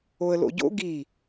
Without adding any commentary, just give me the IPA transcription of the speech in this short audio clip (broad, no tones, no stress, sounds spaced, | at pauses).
o ə̯ l o̰ ɟ o̰ ɡ i